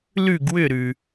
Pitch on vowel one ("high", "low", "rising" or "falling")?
falling